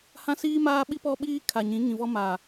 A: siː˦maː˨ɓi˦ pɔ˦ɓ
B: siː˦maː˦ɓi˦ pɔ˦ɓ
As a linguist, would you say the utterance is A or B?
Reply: B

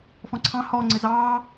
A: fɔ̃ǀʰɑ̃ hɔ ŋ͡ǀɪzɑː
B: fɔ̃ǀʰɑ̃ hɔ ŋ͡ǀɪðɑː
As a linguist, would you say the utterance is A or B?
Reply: A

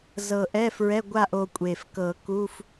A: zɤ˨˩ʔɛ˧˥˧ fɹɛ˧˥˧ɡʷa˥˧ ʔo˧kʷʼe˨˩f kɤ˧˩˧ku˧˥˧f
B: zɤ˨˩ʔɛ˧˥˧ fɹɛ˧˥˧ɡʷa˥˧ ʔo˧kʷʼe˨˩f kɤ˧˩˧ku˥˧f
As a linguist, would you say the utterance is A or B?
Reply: A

